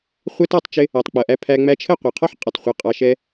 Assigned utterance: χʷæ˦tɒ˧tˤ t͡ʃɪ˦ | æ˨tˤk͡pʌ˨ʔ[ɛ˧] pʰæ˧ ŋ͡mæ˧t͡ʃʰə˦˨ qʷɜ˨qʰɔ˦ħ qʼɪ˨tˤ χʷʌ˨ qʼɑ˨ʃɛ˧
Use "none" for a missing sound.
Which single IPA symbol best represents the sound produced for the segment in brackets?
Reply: æ˧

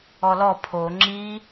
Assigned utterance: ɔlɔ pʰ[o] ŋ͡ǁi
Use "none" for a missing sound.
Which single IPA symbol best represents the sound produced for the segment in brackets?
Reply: o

